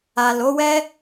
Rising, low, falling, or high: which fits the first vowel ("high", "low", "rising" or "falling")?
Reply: low